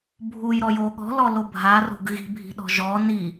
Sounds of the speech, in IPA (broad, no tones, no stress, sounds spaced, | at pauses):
bʱ u j ɾ ɔ j o ɠ ɔ̤ l ɔ l o bʱ a r o̤ ɡ ɣ i̤ bʱ i̤ ɗ ɔ̤ ʒ ɔ n i